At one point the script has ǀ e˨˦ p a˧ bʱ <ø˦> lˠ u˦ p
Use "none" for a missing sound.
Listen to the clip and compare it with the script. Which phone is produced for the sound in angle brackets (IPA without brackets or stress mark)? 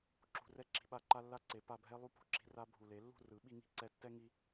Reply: ɛ˦